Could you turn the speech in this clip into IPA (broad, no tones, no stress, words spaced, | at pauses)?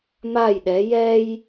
maj ɗɛ jɛj